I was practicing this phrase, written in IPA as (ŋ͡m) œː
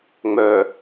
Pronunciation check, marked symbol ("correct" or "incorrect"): correct